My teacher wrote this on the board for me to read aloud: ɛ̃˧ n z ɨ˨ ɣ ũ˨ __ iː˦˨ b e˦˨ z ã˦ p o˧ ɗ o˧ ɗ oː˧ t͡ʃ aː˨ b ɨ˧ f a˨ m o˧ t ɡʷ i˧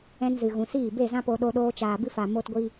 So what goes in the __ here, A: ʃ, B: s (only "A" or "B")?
B